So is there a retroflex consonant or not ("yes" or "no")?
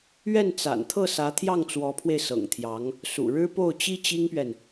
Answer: yes